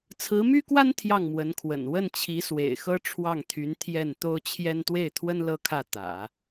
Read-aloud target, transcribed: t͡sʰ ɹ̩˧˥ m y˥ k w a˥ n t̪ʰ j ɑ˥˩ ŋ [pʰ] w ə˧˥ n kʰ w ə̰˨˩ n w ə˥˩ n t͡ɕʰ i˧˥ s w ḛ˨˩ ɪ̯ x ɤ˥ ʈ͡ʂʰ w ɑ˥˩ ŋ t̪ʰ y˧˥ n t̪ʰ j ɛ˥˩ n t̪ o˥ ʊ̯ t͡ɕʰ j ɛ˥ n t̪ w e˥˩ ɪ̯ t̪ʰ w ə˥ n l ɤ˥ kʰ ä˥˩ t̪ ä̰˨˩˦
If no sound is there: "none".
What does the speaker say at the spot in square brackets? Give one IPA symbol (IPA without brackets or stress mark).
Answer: m